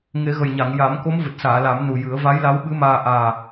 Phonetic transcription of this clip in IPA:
ŋ e˨˩˦ ɣ ə˨˩ j ɲ a˨˩˨ ŋ j a˨˩˦ m k o˧˥ m v ɨ˨˩ t̚ s aː˨˩˨ l a˨˩˦ m n u˨˩ j ɨ˨˩˦ ə̯ v a˧˥ j l a˧˥ w ɓ ɨ˧˥ m aː˧ ʔ aː˨˩

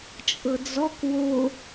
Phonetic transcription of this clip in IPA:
t͡ʃʼ ɤ d͡z ɔ k w o

